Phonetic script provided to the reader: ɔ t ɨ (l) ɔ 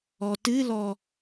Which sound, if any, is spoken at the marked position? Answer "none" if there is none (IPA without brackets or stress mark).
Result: l